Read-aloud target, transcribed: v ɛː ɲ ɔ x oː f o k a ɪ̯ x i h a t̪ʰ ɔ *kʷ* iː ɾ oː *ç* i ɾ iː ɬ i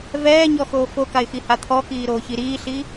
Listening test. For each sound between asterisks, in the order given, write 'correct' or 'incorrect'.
incorrect, correct

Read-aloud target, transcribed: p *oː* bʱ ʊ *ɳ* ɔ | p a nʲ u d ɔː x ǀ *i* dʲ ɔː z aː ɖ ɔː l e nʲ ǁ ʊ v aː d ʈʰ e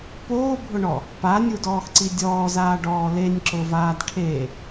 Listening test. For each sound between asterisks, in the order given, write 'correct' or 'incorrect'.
correct, correct, correct

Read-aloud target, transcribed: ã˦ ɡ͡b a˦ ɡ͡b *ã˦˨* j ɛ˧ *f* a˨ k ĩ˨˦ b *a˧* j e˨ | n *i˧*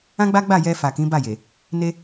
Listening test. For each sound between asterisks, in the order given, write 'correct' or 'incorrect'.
incorrect, correct, incorrect, incorrect

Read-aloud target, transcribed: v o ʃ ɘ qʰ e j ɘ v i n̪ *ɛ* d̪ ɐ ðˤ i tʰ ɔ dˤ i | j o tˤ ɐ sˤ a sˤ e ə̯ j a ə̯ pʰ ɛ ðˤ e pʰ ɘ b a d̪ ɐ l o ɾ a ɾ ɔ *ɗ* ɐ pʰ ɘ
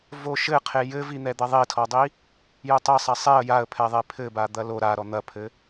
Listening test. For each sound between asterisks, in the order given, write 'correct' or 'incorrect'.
correct, incorrect

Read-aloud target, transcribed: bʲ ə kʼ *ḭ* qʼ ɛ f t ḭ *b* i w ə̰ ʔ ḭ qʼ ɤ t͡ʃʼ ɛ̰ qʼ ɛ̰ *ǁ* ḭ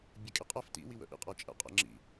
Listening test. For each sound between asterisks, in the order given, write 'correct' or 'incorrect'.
incorrect, incorrect, incorrect

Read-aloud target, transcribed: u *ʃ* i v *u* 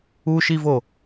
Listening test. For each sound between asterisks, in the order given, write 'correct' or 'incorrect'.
correct, incorrect

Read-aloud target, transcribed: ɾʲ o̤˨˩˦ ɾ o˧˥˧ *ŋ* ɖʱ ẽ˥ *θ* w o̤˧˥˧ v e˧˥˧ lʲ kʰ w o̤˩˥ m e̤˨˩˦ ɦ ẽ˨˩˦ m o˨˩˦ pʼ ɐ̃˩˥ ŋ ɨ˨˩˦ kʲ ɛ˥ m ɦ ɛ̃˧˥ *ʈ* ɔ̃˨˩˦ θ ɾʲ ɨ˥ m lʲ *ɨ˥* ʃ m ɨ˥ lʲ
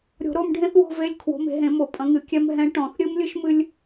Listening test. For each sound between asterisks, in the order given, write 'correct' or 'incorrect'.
incorrect, correct, correct, correct

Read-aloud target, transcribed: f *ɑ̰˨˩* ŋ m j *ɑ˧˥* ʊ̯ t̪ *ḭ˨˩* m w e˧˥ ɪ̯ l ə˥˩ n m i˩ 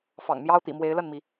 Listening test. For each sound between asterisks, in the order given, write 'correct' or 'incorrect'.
correct, incorrect, correct

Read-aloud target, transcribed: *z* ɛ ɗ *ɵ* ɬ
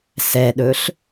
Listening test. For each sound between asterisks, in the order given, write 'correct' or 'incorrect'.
incorrect, correct

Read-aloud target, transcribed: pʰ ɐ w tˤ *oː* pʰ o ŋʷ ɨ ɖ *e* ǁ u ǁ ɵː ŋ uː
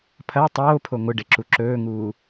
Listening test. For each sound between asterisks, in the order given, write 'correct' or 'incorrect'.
correct, correct

